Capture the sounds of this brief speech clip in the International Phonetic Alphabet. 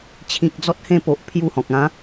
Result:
t͡ɕʰĩ˨k̚d͡zɔ˦t̚hẽ˥˧po˨ʔ pʰju˦hɔ̃˨k̚ ã˨˦

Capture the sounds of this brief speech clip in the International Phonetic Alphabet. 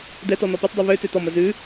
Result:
dɛtɔ nɔpʉtˤdˤʉ βø tøtɔmə zʉ

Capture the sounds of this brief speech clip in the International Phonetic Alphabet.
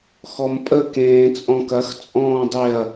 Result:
xɔmpʼə kẽːt͡sʼɔ̃kɐx t͡sʼɔ̃ːdˤeɐ̯

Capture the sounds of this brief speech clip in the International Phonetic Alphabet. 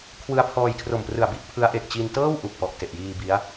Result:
kʰwɯ˧a̯pʰɔː˧jkʰro˨˩mprɯ˨˩a̯ bi˦˥ʔ pʰɯ˦˥a̯ʔe˨˩k̚ t͡ɕi˧ntɤː˥˩w ʔu˨˩k̚pɔ˨˩ʔte˨˩ʔjiː˧ bi˦˥a̯

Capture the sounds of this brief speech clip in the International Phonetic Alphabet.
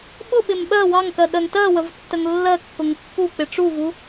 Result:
ɓʊɓɪm ɓɜ wɑŋkɜ ɗɜŋtɜwəv tːəŋlːɜkːʊŋ pːuk͡pɪ ʈ͡ʂuvu

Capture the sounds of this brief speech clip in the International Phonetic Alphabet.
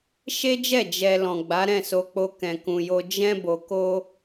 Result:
ʃe˦d͡ʒɛ˦˨ d͡ʒɛ˨lɔ̃˨ ɡ͡ba˨˦ɾɛ̃˦˨so˧k͡po˧ kɛ̃˨kũ˨jo˧ d͡ʒɛ̃˦ bo˧ko˦

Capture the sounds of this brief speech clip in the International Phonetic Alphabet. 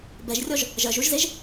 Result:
bɛʒrʲɔʒ | ʒɜʒuʒzeʒ

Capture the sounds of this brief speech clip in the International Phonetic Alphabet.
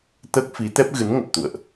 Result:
t̪əː˦˥k̚fi˨˦t̪ɛ˦˥p̚ ɣɨ˨˦n ŋə˨˩p̚t̪ṵ˧˨ə̯ʔ

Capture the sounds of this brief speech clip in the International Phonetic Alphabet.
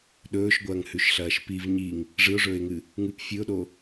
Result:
ɗɵːʃɡʷɐːŋhʉʃɬɐːʃ piv ɲiŋ | ʐɨʊ̯ʐɵːɪ̯ŋɨ | ŋɨp fʲɨʊ̯ɗo

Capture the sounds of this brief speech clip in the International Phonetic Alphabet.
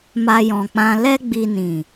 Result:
ma˧jɔ̃˨k͡pã˧ lɛ˦ɡ͡bi˧nĩ˨

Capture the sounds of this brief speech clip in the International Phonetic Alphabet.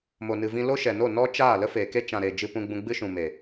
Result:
mo˨nɨ˨vĩ˧ lo˦ʃɛ˨no˦˨ nɔ˦t͡ʃaː˦˨ lə˦feː˨ke˦ t͡ʃã˨ ɾe˨ d͡ʒɨ˧pũ˧ɡ͡bũ˧ ɡ͡bɨ˦ʃũ˨ me˨

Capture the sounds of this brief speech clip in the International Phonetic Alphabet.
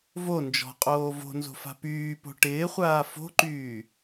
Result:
vo nd͡ʒɔ̤qʼoː vo̤nzo̤fa̤ pyːpo̤ ʈɪːχʷaː fo̤ǃyː

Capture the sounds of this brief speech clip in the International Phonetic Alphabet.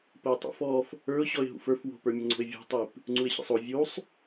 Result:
pəɪ̯tˤṵfɔf | ə˞ʊ̯ ɕɔɪ̯ɦṵfə˞f wo̤pə˞mʲəŋ͡ǀo̤ɪ̯ vʲṳtˤip | ŋ͡ǀuɪ̯ɕə̰sˤo vʲusˤ

